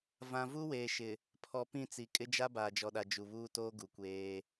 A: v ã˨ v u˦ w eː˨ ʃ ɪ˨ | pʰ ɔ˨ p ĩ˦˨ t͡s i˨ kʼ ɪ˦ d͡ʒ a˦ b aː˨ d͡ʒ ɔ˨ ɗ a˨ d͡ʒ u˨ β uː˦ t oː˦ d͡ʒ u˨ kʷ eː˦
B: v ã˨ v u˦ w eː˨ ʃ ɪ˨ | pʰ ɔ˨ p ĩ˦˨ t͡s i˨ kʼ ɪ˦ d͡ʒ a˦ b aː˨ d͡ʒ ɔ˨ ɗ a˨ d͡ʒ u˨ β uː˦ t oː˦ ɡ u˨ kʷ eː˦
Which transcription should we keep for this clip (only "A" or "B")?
B